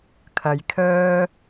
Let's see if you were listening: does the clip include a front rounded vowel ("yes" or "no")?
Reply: yes